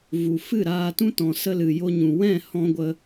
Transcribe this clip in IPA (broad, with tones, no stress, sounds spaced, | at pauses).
v u˨ f ɨ˦˨ ɾ aː˧ t ũ˦ t ɔ̃˨ s ə˧ l ɨ˨ j o˧ ɲ ũ˨ w ɛ̃˦˨ h ɔ̃˧ ɡʷ ə˧